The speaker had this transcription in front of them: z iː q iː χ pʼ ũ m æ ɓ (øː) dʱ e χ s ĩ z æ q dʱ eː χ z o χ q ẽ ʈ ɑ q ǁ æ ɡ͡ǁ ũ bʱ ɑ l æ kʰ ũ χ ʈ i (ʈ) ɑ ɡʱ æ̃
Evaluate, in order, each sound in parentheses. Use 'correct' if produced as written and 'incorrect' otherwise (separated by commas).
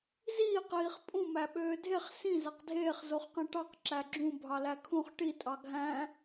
correct, incorrect